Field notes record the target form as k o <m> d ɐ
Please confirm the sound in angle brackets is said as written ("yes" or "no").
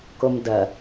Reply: yes